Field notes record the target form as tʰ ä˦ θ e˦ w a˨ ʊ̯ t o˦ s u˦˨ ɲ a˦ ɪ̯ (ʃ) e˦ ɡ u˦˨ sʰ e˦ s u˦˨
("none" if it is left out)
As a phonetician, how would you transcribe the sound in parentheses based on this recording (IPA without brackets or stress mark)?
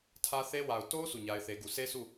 θ